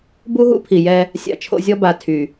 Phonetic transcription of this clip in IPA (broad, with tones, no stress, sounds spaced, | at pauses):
b u˦ ɦ ṵ˦ pʰ i˨ j ɛ˦ | sʲ a̰˨ t͡ʃʰ o̰˨ zʲ ɔ˦ b a˨ tʰ y˨